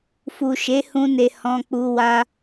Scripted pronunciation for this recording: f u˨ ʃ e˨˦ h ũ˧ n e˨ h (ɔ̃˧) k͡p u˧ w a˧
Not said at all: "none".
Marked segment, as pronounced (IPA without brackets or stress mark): ɔ̃˧